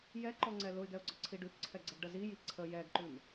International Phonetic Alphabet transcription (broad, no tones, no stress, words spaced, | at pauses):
jɛǃɔŋ͡ǀɛ lʊɪ̯ɡɛʊ̯ɡ͡ǀɔǀʰi ɖʉpǀʰɛɡ͡ǀəɡɖə ziji ǀʰə jɛɡǃʉm